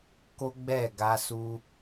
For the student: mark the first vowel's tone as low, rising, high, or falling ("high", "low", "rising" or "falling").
high